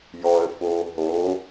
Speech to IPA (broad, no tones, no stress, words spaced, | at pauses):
jɔə̯foː ɦo